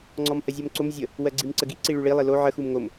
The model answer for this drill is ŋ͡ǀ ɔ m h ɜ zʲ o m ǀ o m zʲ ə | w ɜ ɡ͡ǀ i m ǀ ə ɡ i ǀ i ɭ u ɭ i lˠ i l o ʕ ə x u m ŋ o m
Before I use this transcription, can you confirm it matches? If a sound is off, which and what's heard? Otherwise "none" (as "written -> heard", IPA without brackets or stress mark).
none